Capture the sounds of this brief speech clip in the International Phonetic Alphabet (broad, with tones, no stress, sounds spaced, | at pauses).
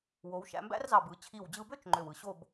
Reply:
w o˩˧ w ʃ æ̰˧ m b æ̰˥ r z ɑ˧˩ b ɯ˩˧ t͡ɕʰ i˧˩ w d͡ʑ ɯ˧ b ø˥ t͡ʃ ŋ͡ǃ ø˧˩ w ɯ˧˩ ɕ o˥˧ b